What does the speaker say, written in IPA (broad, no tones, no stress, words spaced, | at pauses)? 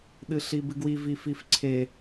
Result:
ɗɨɬibɨɡwi vififǀʰe